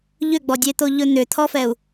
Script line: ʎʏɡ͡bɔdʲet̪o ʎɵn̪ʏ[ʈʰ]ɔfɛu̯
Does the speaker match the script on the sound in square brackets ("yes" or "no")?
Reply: no